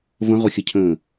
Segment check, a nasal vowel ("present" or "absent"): present